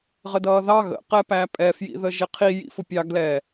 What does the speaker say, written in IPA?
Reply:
ʁ ə d ʌː ð ɑ ɣ ə̰ q ɛ p æ pʼ ɛ f j ḭ ð ə ʒ ɪ qʰ i j ḭ f ʊ pʲ ɑ ɡ l ɛ

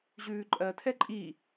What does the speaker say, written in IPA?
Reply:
ʑ ʉː ǃʼ ɜ tʰ ɛ ǃʼ i

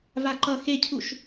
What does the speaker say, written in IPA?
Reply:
v a ǃ ʌ x e cʰ u ʃ

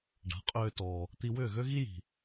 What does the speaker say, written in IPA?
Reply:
ɖ a̤˩˥ qʼ øː˧ t ɔː˩ | t̪ i˧ w ʏː˥˩ ɣ ø˥ ɣ i˥ j i̤˩

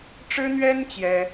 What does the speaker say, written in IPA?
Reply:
ʈ͡ʂ ɻ̩˥ n̪ ɥ ɛ˥ n t͡ɕ j ɛ˥

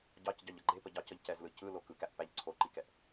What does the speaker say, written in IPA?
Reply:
ɟ ɑ c ɟ ɑ ʎ ʌ ɡ͡ǃ e p ə ɟ ɑ c ə ʎ c ɛ z l ɯ c ɯ l o k ɯ k æ ʔ p æ ʎ ǀʰ o ǃ i k ɛ ʔ

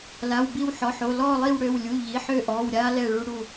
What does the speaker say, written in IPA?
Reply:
l a˩˧˩ w b i˦˨ w ħ ɔ˩˧˩ ħ o˩˧˩ l ɔː˦˨ lˠ i˦˨ w ɽ ø˩˧˩ w lʲ u˩˧˩ ʎ i˩˧˩ ħ ø˦˨ ʔ ɔː˩˧˩ w ɾʲ aː˦ l ɛ˦˨ ɭ u˦ ɽ u˦˨

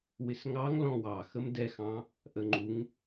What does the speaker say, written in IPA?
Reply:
w ɪ s ŋ ɑ ŋ l ɔ̃ w ɑ x ə m d ɛ x ɑ̃ | ʔ ə ŋ͡ǃ u ŋ

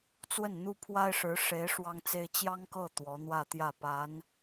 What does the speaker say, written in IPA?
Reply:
t͡s w ə˥˩ n n̪ u˥ pʰ w a˥ ɪ̯ ʂ ɻ̩˧˥ ʂ e˧˥ ɪ̯ ʂ w ɑ˥ ŋ t͡s e˥ ɪ̯ t͡ɕ j ɑ˥ ŋ k ɤ˥˩ t̪ w ɔ˧˥ n̪ w ä˥˧ t̪ j ä˥˩ p a˧˥ n

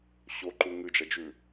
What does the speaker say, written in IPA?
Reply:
ɕ o ǃ u ŋ ɨ d͡ʒ ɐ d͡ʒ ʉ

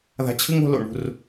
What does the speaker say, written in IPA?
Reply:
ð a̤˧ t͡ɕʰ ɨ˦ ŋ o̤˧ l o̰˨ ɳ ṳ˦˨ r

